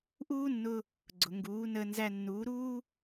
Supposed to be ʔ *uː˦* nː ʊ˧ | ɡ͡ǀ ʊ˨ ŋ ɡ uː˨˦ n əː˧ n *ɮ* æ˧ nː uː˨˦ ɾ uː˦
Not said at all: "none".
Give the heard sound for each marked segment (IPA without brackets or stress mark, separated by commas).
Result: uː˦, z